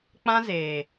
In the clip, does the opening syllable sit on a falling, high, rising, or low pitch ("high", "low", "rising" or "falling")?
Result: high